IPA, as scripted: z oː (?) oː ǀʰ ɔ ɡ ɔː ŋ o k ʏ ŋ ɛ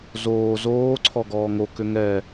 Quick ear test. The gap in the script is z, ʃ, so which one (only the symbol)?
z